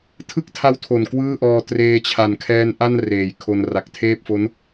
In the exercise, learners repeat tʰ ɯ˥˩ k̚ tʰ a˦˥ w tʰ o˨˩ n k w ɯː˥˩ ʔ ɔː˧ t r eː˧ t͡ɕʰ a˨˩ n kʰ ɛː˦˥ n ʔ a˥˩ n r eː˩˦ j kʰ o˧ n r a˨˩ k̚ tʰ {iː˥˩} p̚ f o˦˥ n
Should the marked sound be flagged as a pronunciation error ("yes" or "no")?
yes